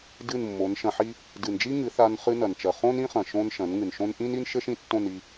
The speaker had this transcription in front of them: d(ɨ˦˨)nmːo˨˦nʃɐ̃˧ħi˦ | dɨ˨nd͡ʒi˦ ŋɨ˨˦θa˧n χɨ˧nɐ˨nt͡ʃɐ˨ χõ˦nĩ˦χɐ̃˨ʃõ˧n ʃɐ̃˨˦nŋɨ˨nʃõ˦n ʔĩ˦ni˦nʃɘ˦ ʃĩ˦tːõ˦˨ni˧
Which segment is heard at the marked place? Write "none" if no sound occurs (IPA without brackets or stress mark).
ɨ˦˨